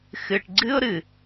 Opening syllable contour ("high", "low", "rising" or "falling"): low